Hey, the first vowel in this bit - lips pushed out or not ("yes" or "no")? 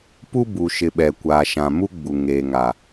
yes